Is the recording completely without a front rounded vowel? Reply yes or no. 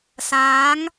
yes